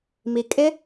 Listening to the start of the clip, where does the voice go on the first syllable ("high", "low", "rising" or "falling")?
low